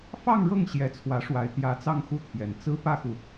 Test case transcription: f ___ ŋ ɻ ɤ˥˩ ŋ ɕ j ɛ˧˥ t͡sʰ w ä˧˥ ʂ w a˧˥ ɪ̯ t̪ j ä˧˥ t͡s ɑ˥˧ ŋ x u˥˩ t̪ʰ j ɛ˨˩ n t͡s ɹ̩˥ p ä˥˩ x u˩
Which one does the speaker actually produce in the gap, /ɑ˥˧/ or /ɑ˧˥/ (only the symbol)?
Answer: ɑ˥˧